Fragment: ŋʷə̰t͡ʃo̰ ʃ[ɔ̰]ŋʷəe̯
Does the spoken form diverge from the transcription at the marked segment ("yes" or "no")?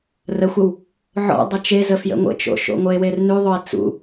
yes